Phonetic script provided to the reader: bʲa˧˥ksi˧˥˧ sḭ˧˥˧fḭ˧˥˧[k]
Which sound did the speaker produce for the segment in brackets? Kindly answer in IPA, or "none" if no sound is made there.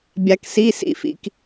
k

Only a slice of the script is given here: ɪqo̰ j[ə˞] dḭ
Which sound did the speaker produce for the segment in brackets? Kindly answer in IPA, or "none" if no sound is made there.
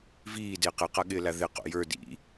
ə˞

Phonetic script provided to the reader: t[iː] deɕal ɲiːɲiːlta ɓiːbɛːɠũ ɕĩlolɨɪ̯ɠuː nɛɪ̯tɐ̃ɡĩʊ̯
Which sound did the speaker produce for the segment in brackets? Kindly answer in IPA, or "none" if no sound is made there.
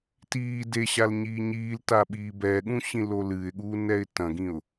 iː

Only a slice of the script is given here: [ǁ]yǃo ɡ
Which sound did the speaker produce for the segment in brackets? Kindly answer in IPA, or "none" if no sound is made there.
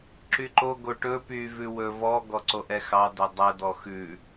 ǁ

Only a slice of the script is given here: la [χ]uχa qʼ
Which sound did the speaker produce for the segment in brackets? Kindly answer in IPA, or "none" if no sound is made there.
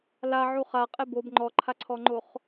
ʕ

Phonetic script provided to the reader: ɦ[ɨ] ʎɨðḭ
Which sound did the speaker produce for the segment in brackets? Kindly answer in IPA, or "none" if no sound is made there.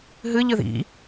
ɨ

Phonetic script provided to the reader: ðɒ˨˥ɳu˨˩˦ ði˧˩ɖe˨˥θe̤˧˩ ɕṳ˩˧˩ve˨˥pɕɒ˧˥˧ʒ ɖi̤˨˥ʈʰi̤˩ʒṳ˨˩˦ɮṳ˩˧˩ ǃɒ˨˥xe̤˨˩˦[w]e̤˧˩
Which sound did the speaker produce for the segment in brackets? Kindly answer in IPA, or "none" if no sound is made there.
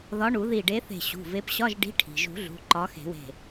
w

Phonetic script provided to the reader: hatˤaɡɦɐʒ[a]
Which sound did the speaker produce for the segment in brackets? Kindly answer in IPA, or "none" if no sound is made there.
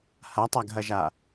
a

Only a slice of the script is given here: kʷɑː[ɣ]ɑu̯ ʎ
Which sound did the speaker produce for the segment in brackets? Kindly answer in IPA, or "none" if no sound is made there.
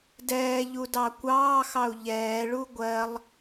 x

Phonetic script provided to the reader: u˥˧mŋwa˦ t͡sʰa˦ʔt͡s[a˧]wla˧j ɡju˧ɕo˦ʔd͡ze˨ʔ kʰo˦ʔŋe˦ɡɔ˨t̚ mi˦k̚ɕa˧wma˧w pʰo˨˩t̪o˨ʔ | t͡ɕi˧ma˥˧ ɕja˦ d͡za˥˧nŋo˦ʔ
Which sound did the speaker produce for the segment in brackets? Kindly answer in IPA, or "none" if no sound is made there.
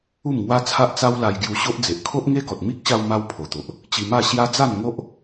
a˦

